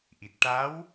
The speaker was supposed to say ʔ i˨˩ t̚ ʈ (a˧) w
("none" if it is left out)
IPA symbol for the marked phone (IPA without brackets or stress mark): a˧˥